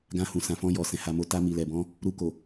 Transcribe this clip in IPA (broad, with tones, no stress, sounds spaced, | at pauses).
ɡ ã˧ h ũ˨ s ã˨ f ɔ̃˧ j ɔ˨ s ɛ̃˨ h a˧ m o˧ t a˧ m i˨ l ɛ˨ b ɔ̃˧ | ɾ u˧ k o˨